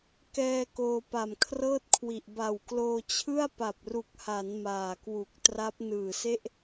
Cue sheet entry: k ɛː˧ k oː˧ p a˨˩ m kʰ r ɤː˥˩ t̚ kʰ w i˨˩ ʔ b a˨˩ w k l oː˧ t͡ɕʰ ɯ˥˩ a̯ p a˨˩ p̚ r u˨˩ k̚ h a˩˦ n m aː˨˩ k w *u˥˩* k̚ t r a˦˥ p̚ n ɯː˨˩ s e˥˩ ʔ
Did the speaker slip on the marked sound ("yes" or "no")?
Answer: yes